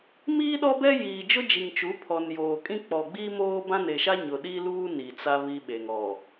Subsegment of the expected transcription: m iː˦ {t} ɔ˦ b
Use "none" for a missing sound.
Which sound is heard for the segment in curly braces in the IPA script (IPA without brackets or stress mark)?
ɗ